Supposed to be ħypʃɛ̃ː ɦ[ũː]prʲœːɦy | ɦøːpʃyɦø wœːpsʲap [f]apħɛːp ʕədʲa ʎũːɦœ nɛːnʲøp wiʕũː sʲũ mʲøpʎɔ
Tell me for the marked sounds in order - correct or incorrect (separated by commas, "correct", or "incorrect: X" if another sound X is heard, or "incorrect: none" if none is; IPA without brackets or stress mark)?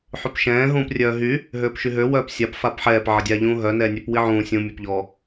correct, correct